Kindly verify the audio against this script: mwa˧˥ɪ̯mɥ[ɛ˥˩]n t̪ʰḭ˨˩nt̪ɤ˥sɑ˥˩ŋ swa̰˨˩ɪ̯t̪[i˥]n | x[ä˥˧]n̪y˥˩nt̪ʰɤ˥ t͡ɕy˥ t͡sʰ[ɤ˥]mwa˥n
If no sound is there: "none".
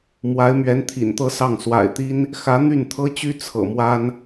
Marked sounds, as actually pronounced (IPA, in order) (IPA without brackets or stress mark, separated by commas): ɛ˧˥, i˥, ä˧˥, ɤ̰˨˩